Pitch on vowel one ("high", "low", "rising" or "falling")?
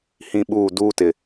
high